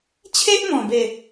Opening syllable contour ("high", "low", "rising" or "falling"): high